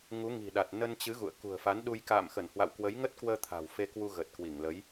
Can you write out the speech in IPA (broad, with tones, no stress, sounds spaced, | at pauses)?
ŋ u˨˦ ŋ i̤˨˩ ɗ a˨˩ t̚ n ə˧ n t͡ɕ ɨ˨˦ ɣ ṵ˧˨ ə̯ k ṳ˨˩ ə̯ f a˨˦ n ɗ u˧ j k a̰ː˧˨ m x ə˧˩ n h w a̰˧˨ w k w ə˨˦ j ŋ ə˦˥ t̚ k w əː˧ t̪ʰ a̤˨˩ w f e˧ k w u˧ ɣ ə˨˩ t̚ k w i˧˩ ŋ l ə˨˦ j